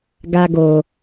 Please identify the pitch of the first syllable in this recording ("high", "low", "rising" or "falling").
high